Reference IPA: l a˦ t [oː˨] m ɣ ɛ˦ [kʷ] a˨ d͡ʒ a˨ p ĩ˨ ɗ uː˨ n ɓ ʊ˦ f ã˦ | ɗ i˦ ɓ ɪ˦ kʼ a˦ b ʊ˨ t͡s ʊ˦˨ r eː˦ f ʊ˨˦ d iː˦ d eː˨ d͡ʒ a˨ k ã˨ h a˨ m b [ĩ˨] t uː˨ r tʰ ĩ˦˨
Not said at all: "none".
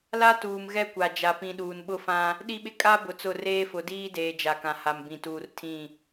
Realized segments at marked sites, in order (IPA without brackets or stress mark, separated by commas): uː˨, kʷ, ĩ˨